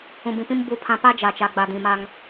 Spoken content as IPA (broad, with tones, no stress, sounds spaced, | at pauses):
ũ˨ b ĩ˨ p ĩ˦ m b u˦ pʰ ã˦ p a˦ d͡ʒ a˨ t͡ʃ a˨ ɡ͡b a˨ d ĩ˨ m a˦ ŋ